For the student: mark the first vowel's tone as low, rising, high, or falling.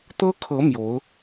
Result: high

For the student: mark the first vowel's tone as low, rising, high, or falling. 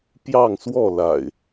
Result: falling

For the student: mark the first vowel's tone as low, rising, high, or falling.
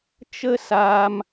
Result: high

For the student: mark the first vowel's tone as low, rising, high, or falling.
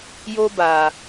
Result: high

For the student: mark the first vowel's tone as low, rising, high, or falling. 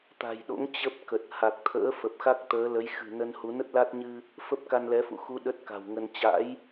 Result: low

